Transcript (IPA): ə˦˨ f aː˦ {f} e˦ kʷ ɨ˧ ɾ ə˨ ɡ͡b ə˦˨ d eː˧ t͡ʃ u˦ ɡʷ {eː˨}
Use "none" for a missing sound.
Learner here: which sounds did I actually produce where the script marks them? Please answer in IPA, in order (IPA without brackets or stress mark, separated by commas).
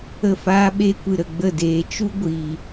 ɓ, iː˨